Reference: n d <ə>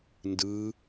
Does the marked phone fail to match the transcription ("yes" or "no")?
yes